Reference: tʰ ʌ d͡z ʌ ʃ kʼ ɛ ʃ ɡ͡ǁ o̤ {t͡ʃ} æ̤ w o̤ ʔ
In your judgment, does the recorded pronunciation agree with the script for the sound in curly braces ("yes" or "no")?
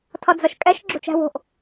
yes